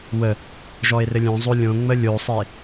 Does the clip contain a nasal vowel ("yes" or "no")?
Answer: yes